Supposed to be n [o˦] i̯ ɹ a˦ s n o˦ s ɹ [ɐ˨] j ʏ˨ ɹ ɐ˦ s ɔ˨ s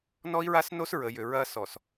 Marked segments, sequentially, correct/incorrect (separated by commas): incorrect, incorrect